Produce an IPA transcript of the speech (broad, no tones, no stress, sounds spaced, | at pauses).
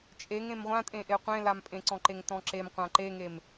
t͡ʃʼ e ŋ ẽ m ʁʷ ã tʼ ẽ ʔ e qʷ ẽ l a m pʼ ẽ ǀ ɔ̃ ǃ e ŋ t ɔ̃ ǁ e m qʷ ã ǃ e ŋ e m